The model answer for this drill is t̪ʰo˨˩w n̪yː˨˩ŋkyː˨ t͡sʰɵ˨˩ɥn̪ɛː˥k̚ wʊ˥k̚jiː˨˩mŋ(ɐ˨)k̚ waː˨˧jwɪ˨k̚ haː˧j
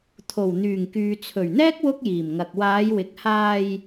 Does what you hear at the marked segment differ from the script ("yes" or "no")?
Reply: no